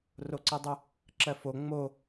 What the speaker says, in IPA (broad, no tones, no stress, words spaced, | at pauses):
roǀidˤə | ǁɜfo ŋ͡mo